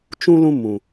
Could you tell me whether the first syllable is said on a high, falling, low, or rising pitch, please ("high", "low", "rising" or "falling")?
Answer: high